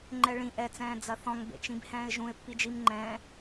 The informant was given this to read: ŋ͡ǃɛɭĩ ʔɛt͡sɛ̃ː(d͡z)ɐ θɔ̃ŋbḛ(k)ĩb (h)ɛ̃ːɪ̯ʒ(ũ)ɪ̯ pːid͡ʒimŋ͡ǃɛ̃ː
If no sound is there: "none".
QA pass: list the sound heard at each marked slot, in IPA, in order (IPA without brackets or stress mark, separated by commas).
d͡z, t͡ʃ, h, ũ